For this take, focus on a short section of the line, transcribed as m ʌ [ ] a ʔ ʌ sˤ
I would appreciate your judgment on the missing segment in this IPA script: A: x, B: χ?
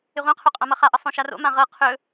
B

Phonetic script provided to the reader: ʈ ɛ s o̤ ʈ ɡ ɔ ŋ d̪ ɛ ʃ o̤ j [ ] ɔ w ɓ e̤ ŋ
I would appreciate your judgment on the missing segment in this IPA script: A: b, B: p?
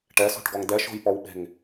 B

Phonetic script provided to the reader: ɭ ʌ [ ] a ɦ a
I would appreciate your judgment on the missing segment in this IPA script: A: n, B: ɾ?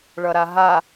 B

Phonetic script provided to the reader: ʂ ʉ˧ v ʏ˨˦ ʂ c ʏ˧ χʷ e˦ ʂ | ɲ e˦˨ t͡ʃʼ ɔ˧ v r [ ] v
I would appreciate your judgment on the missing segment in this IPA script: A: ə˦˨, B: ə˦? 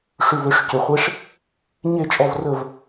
A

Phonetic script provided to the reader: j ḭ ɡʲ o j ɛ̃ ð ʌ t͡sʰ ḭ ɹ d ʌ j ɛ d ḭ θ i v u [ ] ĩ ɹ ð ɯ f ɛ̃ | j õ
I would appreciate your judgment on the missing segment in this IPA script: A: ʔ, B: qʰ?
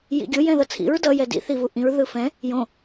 A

